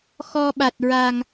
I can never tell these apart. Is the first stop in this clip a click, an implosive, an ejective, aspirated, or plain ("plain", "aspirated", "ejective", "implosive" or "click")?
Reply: implosive